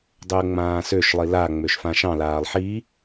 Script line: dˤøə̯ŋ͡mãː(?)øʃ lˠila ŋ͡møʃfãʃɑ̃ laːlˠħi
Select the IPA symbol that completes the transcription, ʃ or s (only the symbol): s